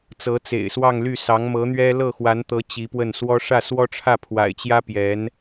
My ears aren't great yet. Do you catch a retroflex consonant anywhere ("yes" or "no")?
yes